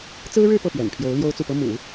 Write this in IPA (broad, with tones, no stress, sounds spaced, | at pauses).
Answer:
t͡s ɹ̩˥ ɻ ɻ̩˥˧ p ɤ˥˩ p ɥ ɛ̰˨˩ n pʰ j o˧˥ ʊ̯ l j o˥ ʊ̯ t͡s u˥˩ p ɤ˥ m ṵ˨˩˦